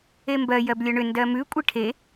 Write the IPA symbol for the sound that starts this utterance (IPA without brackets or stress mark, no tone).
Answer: e